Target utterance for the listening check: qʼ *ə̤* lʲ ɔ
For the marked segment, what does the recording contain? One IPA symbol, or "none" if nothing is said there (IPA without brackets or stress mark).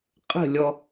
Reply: ə̤